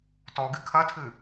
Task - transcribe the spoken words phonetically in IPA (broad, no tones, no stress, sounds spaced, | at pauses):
t ɔ ɡ ɨ kʰ ɐ tʰ ɨ